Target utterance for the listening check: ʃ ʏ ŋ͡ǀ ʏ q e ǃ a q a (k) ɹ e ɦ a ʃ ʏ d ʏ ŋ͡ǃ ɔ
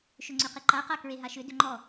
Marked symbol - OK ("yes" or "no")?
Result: yes